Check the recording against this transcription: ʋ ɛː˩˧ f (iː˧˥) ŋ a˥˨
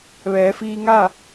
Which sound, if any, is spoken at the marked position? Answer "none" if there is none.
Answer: iː˧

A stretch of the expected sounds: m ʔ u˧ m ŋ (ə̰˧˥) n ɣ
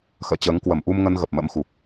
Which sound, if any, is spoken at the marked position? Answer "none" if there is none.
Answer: ə˧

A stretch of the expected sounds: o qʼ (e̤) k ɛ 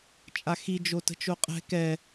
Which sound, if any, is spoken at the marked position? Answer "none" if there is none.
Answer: ɛ̤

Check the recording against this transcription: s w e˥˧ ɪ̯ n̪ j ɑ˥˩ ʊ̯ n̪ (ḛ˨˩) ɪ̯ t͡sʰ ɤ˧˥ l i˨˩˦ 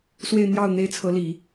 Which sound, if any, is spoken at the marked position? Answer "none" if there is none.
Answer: e˥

